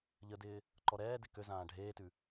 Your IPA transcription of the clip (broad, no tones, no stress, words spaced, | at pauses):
ʎədɪː | ǃɔɾɛːdɪ køzãː ɖʱeːtʉ